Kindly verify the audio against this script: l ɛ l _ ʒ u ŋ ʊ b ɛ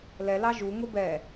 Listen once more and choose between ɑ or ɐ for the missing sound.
ɑ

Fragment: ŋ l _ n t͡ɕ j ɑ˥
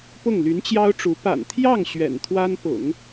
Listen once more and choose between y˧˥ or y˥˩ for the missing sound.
y˧˥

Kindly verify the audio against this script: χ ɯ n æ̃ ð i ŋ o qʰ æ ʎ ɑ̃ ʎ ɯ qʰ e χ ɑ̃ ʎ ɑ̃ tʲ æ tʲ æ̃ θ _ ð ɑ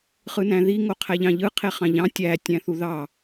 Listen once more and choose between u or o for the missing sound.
u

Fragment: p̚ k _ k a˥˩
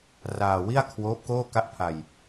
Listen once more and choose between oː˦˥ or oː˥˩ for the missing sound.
oː˥˩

